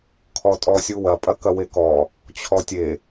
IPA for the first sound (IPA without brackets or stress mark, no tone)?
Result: kʰ